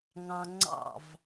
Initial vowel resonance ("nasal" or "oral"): nasal